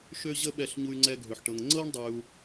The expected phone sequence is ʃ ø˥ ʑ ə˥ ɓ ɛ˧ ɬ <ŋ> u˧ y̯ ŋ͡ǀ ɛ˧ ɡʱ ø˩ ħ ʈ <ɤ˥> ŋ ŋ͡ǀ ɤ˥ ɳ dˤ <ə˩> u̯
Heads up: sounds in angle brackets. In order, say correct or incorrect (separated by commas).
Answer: incorrect, incorrect, incorrect